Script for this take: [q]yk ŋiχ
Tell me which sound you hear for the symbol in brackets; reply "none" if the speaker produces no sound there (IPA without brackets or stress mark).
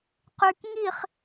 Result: q